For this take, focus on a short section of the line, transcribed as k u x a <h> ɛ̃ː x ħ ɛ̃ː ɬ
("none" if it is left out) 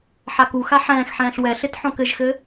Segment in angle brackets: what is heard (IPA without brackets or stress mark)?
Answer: ħ